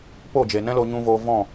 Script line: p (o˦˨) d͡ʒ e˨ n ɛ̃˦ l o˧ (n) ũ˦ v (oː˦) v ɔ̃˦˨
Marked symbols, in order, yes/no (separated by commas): yes, no, yes